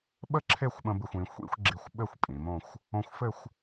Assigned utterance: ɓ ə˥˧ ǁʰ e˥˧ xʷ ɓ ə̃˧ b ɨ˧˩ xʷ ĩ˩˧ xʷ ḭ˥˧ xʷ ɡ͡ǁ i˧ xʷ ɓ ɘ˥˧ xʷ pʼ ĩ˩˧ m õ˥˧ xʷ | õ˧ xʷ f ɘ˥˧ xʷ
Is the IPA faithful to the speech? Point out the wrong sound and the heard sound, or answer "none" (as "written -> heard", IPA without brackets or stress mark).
none